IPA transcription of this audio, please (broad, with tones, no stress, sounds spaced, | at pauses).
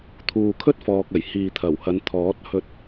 t̪ʰ uː˨ kʰ ɵ˥ t̚ f ɔː˨ k̚ ɐ˨˩ j h iː˨ t̪ʰ ɐ˨˩ w h ɐ˨˧ n t̪ʰ ɔː˨˥ t̚ h ɵ˧ t̚